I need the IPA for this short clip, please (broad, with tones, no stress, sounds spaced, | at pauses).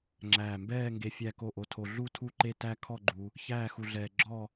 ŋ͡ǁ æː˧˩ m b ɛː˥˧ ŋ ɡ e˧ fʲ æ˥˩ k o˥˩ ʔ o˧ tʰ o˧ ɮ u˥˧ tʰ u˥˩ ǃ e˥˩ t æ˥˧ kʰ ɔ˥˧ ɡ͡ǃ u˧ | ç æː˥˧ x u˧ ɮ ɛː˧ ɡ͡ǁ ɔ˥˧